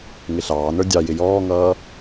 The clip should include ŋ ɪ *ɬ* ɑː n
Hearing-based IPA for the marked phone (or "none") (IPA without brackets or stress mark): ɬ